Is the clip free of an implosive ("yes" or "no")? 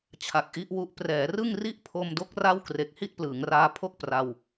yes